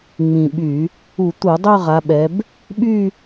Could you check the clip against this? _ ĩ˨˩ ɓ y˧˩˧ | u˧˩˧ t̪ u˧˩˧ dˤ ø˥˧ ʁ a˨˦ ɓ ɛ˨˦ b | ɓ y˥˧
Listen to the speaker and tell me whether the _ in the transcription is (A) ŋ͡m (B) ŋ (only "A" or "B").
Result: A